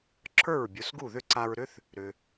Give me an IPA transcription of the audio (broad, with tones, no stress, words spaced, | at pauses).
ǁʰə˞˥˩ɹbʲo˩˥sɡu˥˩ ðʏ˥˩ǀa˧ɹɾʏ˥θ | ɾʏ˩